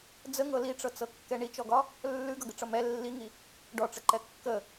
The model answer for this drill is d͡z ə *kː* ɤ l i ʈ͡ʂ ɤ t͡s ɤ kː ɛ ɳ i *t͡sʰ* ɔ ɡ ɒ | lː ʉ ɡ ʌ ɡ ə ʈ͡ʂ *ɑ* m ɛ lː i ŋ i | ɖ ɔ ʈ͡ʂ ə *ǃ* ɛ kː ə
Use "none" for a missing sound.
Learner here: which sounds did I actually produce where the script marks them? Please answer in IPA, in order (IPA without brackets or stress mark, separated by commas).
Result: ŋ, t͡ʃ, ʌ, ǃ